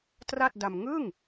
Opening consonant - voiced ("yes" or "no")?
no